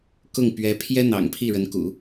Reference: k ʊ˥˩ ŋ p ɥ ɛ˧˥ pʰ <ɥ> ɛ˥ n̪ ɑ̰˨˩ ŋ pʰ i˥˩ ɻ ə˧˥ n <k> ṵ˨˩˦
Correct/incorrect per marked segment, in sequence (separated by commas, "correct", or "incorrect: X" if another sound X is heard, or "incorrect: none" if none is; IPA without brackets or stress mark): incorrect: j, correct